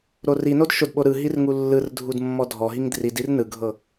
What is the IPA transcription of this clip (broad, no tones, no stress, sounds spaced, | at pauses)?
ɾ o r i n o d ʃ o d ɓ o ɾ ɯ ɦ i r ŋ u lː ɯ r dʱ u d mː ɔ dʱ ɔ ɦ i ŋ d r i d i r n ɯ ɡʱ ɤ